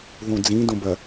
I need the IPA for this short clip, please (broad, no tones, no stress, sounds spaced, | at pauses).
ð õ d͡z ĩ d õ b ɐ